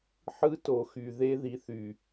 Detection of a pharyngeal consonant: present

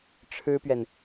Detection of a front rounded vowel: absent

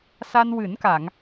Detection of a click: absent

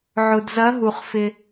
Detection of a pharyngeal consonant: present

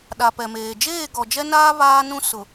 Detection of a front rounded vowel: absent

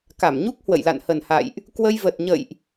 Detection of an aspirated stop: absent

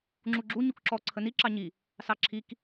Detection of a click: present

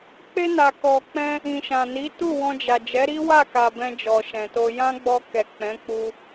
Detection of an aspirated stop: absent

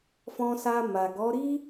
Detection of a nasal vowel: present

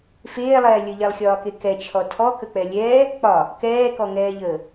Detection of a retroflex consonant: absent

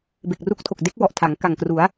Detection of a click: absent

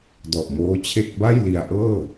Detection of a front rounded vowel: absent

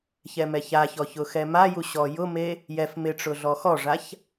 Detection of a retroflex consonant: present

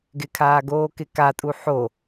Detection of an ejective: present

